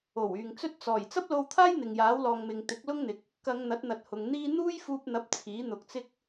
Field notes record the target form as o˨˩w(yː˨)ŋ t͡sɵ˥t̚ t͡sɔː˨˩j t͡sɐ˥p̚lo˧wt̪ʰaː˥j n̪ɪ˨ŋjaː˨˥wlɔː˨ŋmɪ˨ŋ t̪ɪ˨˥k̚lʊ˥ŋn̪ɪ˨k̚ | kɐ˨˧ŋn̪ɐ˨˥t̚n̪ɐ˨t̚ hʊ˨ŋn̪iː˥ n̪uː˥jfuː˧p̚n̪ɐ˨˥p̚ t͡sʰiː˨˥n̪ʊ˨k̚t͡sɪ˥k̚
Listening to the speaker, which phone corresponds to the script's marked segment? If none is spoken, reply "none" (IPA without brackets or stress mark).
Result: yː˨